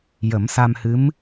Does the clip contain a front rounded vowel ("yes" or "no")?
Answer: no